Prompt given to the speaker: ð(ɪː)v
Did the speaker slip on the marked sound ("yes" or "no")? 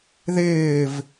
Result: no